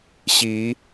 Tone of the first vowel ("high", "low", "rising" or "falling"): rising